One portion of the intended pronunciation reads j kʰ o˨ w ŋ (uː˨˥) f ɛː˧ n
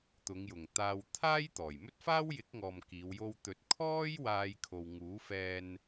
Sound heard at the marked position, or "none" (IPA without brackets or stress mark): uː˨˥